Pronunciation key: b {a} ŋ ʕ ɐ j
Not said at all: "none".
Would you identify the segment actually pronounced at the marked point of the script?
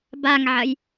a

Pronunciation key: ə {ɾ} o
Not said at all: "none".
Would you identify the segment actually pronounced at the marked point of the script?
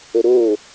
ɾ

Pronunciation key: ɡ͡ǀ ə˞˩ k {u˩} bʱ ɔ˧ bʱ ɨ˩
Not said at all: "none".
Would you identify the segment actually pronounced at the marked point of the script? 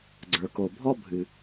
o˩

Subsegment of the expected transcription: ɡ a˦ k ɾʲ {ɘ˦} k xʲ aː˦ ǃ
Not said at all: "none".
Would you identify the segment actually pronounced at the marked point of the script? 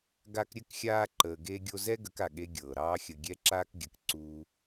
ɘ˦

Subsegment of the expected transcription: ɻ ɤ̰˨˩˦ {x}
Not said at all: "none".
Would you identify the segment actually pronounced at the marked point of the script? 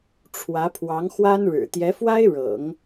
ŋ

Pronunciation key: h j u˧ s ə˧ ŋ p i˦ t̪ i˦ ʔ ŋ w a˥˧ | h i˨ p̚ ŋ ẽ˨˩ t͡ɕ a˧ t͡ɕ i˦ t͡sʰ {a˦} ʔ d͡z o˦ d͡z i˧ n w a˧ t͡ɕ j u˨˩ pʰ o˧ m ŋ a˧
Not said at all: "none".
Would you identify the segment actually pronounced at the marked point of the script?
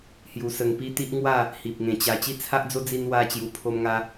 a˦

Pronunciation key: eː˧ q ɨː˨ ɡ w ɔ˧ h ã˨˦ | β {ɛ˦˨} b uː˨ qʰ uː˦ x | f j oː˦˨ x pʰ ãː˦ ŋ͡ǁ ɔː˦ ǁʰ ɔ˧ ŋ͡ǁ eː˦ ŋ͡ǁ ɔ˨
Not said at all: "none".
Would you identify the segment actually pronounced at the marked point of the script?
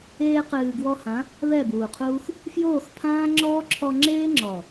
ɛ˦˨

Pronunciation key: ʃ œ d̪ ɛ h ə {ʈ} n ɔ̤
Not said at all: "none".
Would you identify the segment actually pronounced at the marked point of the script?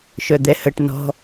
ʈ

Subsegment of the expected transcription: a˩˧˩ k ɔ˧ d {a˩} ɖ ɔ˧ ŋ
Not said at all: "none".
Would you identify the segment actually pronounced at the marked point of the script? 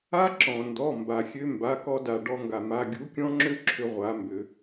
a˩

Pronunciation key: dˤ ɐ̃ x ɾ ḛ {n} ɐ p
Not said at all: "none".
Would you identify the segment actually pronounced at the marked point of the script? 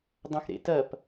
t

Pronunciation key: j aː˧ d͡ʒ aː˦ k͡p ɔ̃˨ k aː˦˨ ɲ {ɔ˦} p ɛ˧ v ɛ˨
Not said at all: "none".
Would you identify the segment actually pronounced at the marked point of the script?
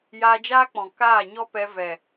ɔ˦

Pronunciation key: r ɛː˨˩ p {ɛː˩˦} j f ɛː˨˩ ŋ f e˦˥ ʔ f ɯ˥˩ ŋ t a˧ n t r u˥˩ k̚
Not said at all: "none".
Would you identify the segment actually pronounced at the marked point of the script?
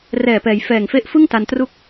ɛː˩˦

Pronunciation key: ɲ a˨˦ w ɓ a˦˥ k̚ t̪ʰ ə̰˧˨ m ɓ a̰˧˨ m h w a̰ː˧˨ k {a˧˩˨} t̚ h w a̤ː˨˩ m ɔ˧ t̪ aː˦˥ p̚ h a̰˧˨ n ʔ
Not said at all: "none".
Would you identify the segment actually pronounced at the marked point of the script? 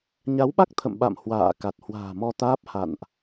a˨˩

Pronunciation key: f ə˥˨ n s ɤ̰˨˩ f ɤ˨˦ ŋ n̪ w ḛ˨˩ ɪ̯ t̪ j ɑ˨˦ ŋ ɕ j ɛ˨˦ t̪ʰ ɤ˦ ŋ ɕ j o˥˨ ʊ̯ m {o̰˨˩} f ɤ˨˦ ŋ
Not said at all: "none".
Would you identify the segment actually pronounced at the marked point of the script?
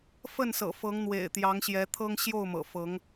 ɤ̰˨˩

